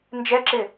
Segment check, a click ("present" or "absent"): present